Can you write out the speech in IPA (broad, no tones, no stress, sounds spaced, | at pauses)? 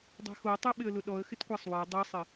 dˤ ɛ̤ x o tˤ ɛ ɓ ɪ ə̯ l ʊ ɗ ɔ ə̯ x ɪ t kʷ a sˤ w ɛ dˤ e sˤ ɪ